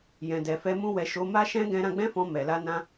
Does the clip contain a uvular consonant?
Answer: no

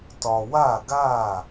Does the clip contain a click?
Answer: no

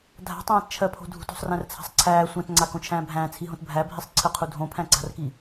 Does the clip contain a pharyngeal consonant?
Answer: no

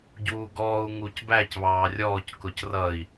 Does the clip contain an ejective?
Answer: no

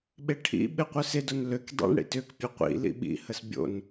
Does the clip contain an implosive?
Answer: yes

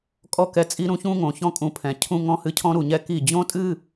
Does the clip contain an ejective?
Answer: yes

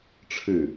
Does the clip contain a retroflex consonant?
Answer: yes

